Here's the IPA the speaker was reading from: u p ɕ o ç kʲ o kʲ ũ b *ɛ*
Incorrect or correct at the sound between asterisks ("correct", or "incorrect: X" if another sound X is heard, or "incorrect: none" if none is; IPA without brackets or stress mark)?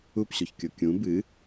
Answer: incorrect: ɨ